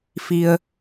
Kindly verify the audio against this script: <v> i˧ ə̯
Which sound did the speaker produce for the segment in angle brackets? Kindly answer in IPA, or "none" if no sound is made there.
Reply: f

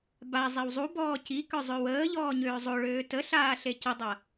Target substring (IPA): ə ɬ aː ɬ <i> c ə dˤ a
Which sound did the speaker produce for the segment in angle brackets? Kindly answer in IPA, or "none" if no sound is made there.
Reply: e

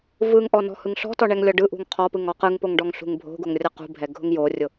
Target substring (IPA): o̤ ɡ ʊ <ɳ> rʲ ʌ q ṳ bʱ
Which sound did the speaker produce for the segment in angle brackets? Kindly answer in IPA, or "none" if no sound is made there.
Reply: ŋ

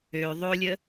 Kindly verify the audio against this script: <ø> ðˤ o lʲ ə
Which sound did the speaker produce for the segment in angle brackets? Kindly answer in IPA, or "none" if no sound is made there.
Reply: ø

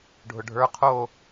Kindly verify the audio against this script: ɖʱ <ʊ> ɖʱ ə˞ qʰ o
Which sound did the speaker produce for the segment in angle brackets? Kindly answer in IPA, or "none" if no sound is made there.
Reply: ʊ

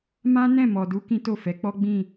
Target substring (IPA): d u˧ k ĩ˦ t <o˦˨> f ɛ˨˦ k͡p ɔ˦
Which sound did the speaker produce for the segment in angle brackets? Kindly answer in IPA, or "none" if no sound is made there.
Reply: o˦˨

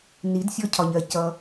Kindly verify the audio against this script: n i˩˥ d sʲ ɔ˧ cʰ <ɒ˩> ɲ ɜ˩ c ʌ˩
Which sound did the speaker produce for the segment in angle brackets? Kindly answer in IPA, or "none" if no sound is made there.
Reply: ɒ˩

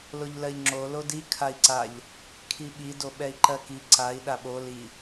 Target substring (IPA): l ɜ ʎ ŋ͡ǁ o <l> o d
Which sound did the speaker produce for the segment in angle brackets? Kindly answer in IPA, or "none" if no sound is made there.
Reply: l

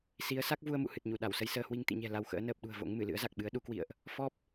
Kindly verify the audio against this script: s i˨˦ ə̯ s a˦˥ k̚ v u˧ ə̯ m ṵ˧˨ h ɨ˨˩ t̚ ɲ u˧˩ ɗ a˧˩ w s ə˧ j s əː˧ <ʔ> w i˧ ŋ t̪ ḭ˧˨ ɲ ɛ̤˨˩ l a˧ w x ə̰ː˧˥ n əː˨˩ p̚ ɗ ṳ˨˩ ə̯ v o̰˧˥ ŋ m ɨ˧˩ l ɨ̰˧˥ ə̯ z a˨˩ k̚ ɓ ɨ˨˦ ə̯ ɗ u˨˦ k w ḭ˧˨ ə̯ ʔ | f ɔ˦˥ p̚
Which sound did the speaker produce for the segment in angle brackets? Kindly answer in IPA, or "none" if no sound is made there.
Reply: h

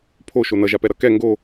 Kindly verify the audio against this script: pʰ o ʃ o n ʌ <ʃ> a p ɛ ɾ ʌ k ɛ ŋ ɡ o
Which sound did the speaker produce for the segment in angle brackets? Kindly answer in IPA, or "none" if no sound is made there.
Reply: ʒ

